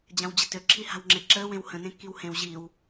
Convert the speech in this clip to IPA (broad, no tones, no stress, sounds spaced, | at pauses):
d͡ʑ ã w d͡ʑ ə t ø ǁʰ i h a̤ w ŋ͡ǁ e ǁ əː w ẽ w h ə̃ n ẽ kː i w h ẽ w ʑ i w